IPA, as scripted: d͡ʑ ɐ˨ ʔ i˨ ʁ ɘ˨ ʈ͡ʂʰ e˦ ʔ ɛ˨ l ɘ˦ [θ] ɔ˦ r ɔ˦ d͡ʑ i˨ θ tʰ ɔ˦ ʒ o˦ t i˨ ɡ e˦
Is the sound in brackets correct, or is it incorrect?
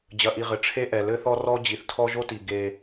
correct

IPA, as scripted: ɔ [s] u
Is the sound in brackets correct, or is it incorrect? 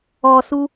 correct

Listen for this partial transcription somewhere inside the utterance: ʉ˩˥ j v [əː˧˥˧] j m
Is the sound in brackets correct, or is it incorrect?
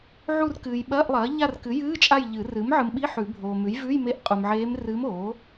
incorrect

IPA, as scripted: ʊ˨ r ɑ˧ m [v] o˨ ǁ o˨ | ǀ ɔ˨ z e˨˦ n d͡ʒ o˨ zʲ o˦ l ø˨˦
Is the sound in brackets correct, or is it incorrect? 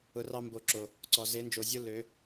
incorrect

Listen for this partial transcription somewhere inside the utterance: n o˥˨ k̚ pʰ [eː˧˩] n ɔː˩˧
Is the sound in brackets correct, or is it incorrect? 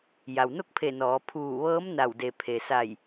incorrect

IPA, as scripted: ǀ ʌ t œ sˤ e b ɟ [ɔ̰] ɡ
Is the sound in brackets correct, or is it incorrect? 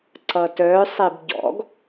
correct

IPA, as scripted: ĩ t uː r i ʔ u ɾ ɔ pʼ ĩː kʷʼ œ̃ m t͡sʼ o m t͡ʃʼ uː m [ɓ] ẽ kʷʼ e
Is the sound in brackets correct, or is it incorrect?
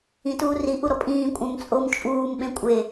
correct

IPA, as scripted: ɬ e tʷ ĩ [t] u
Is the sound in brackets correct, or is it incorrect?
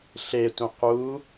incorrect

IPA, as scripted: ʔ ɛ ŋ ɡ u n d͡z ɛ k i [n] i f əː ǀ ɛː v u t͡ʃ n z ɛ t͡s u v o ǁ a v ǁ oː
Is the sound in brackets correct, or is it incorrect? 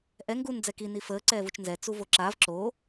correct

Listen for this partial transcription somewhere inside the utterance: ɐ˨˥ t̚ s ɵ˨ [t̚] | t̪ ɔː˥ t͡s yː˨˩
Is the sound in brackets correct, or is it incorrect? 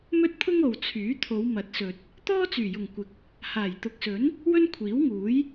correct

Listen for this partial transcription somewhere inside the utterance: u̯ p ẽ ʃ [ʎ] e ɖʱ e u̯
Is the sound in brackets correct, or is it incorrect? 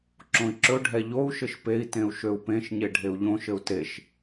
incorrect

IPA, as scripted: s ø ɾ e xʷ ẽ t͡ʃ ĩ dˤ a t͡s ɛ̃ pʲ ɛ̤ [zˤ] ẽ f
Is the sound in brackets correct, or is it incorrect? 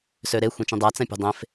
incorrect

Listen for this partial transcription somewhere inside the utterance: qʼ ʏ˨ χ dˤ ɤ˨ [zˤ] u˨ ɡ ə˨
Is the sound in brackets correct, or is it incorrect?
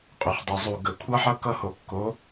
correct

